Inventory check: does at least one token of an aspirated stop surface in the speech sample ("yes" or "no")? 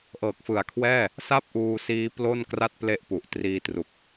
yes